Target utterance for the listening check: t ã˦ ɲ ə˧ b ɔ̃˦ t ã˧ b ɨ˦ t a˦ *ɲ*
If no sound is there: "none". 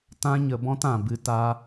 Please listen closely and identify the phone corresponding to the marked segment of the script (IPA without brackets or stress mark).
none